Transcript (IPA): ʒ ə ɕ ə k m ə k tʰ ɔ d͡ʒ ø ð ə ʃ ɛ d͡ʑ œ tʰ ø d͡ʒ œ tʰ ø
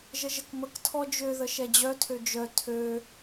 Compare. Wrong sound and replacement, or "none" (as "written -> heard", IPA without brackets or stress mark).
ɕ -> ʒ